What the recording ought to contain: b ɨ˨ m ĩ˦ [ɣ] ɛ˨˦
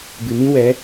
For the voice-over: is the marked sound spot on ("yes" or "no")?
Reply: no